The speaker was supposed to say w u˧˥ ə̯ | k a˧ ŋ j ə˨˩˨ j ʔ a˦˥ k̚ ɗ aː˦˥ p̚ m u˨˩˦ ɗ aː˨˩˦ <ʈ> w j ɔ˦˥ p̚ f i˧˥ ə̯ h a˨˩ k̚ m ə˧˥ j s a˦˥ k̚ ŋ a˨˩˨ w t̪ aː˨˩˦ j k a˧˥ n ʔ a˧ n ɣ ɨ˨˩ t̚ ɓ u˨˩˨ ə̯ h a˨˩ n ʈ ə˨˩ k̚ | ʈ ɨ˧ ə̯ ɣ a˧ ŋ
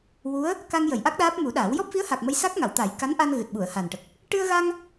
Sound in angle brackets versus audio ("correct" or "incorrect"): incorrect